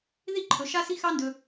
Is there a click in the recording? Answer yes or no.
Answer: yes